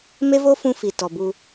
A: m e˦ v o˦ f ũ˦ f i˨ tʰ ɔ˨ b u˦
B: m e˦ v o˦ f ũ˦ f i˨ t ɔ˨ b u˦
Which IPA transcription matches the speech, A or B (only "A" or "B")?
B